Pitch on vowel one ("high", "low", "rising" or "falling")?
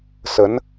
rising